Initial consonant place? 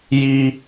palatal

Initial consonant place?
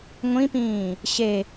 velar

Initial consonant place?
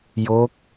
palatal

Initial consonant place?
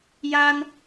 palatal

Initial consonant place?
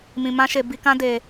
labial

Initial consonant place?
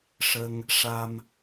retroflex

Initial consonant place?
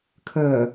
velar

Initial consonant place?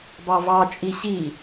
labial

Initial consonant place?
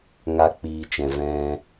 velar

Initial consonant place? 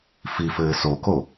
labial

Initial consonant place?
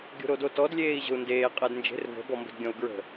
velar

